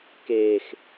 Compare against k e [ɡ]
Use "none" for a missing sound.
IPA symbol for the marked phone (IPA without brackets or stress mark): x